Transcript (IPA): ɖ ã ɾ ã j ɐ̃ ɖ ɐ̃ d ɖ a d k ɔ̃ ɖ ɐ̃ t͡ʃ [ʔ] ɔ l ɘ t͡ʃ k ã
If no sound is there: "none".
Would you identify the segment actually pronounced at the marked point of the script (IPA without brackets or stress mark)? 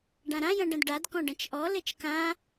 ʔ